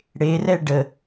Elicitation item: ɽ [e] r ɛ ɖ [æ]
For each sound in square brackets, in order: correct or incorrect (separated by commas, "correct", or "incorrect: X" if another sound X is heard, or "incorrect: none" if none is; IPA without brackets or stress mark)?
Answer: correct, incorrect: ə